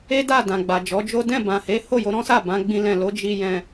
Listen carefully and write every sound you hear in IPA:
e˦da˦˨ dã˨ɡ͡ba˨d͡ʒɔ˨˦d͡ʒo˦ dɛ̃˦˨ bã˨he˨˦ ho˦˨jo˧ɾɔ̃˦sa˦˨ bã˨˦ɡ͡bĩ˧ lɛ̃˨lo˨˦ d͡ʒi˧jɛ̃˧

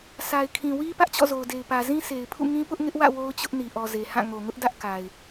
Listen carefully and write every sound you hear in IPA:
sʰa˨ɪ̯kʰĩ˨wi˦ pä˦ʔt͡ɕɔ̰˦˨zo˨ʊ̯de˨ɪ̯ pä˨zĩ˦sʰe˨ɪ̯pʰṵ˦˨ ŋĩ˦pʊ˦ʔŋɪ˦ʔwä̰˦˨ wo˦ʊ̯t͡ɕʊ˦ʔ ni˨ʔɔ˨ ze˨hã˦˨ ŋo˨ŋʊ˦ʔdä˦ʔ ka˨ɪ̯

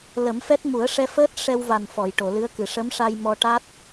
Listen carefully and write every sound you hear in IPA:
lə˨˩˦mfɛ˦˥t̚mu˨˩˦ə̯ ʂɛ˧fəː˦˥t̚ ʂɛ˧wva˨˩n fɔ˨˩˨jʈo˨˩˨lɨ˧˥ə̯kɨ˨˩ ʂə˧˥mʂa˧j mɔ˧ʈa˦˥t̚

